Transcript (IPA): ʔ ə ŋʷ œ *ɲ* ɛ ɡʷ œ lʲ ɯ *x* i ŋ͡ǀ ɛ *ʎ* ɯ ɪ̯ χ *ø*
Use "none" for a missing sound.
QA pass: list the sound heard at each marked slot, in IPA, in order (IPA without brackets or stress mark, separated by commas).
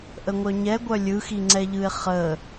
ɲ, x, ʎ, ə